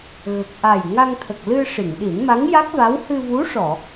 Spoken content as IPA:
ɣ ə˨˩ k̚ ʔ a˨˩ j ŋ a˧ ŋ t̪ʰ ə˨˩ k̚ l ɨ˧ ʂ i˨˩˨ ŋ ɗ i˨˩˦ n m a˧˥ ŋ j a˦˥ k̚ v a˧˥ w h ɨ˧ v u˧˥ ʂ ɔ˨˩˨

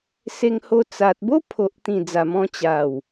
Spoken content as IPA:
s e˧ ŋ h o˧ t͡s a˨ t̚ b o˦ pʰ o˨ ʔ t̪ ĩ˨˩ d͡z a˨˩ m ɔ̃˧ t͡ɕ a˨˩ w

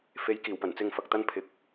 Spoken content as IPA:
f e˨˥ j k iː˨˩ w p ɐ˨˩ n t͡s ɪ˧ ŋ f ɐ˨ k̚ t̪ ɐ˥ n pʰ ɪ˨˥ k̚

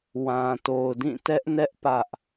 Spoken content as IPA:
w ã˨ t o˨ ʊ̯ d ĩ˦˨ t ɛ˦ ʔ n ɛ˦ ʔ p ä˦ ʔ

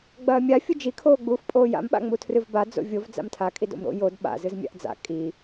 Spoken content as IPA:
ɡ͡b ɐː mʲ a fʲ u d͡ʒ i kʰ oː ɡ͡b uː f pʼ oː j a̰ m ɓ a̰ ŋ͡m u tʰ r ɨ v b a d͡z o̰ vʲ o v d͡z a̰ m tʰ a kʼ i d o̰ m ɾ o̰ j o d ɓ a̰ z ɨ z mʲ a̰ ʔ d͡z a̰ kʼ i

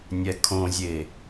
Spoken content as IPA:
nʲ ɛ kʰ õ zʲ e

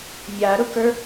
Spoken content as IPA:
mʲ a ɾ ʊ k ə˞

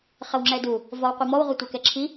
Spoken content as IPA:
χ ɘ w ŋ͡ǁ ɛ d u | v ɔ w qʷ i m ɔ w ʁʷ ɛ tʷ ɛ k ɛ ǁʰ i

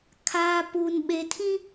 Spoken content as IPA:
kʰ aː˦ p uː˦ n ɓ e˦ tʰ ĩ˦

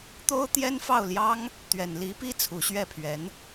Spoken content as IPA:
t̪ o˥ ʊ̯ t̪ j ɛ˥ n f ɑ˥˩ ʊ̯ l j ɑ˥ ŋ | t̪ ɥ ɛ˨˩ n l i˧˥ p i˥˩ t͡sʰ u˨˩ ɕ ɥ ɛ˥˩ pʰ ɥ ɛ˧˥ n

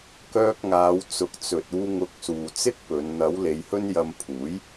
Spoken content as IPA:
k œː˧ k̚ ŋ aː˨˧ w t͡s ʊ˨ k̚ t͡s ɵ˨ t̚ uː˧ ŋ ʊ˨˥ k̚ s uː˨ t͡s ɪ˥ k̚ p ɵ˨˧ n n̪ ɐ˨˥ w l e˨˧ j h ɵ˥ n j ɐ˧ m pʰ uː˨˥ j

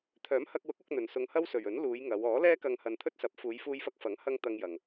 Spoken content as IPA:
t̪ʰ œː˨˥ m h ɐ˧ k̚ w ʊ˨˥ k̚ ʊ˨˥ k̚ n̪ ɵ˨ n s ʊ˧ ŋ h ɐ˥ w s ɵ˨ ɥ ɵ˨˥ n l uː˨˧ j ŋ ɐ˨˧ w ɔː˨˥ l ɛː˥ k ɐ˧ ŋ h ɐ˧ n t̪ʰ ɵ˥ t̚ s ɐ˨˥ p̚ f uː˨˧ j f uː˧ j f ɐ˧ k̚ f ɐ˨˥ ŋ h ɐ˥ ŋ t̪ ɐ˧ ŋ j ɐ˨ ŋ

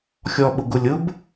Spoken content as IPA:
xʲ ɔ ɓ ʊ ɡ ʊ lʲ ʊ b

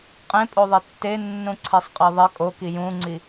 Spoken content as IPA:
qʼ ẽ pʼ o ðˤ e tː e nː ũ ǀʰ e sˤ qʼ e ðˤ ɪ kʼ o k i j ũ ŋ͡ǀ i

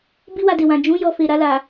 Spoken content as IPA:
b i˦ w a˧ d e˨ w ã˨ d͡ʒ ũ˨˦ j ɔ˧ f e˨ ɾ a˧ l a˨

